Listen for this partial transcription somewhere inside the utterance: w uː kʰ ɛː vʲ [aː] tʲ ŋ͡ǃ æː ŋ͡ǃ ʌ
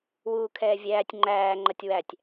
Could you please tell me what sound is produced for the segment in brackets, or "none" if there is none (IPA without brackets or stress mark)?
æː